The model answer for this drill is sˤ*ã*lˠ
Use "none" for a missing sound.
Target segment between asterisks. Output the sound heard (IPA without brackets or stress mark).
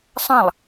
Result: ã